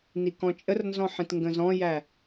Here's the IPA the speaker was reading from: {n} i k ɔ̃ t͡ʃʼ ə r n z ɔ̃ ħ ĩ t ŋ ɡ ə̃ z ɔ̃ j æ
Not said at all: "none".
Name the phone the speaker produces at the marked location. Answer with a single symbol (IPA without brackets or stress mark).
n